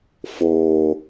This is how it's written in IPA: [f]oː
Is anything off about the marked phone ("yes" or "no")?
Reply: no